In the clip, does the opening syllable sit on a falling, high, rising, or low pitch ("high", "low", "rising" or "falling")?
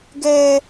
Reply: high